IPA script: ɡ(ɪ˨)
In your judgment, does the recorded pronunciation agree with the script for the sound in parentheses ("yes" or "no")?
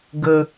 no